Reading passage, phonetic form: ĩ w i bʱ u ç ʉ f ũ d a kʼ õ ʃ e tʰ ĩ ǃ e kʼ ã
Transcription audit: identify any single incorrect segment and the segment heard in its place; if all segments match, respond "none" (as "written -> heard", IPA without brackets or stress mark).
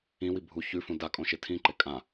none